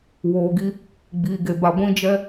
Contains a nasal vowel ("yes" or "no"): yes